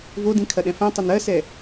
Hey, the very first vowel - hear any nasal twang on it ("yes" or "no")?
no